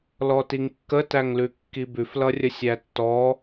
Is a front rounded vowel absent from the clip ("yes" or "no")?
yes